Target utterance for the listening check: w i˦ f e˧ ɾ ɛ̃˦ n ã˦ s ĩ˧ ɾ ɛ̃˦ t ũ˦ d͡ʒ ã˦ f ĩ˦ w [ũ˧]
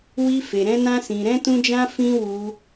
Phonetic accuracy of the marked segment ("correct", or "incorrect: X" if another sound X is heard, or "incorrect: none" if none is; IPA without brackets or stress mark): incorrect: u˧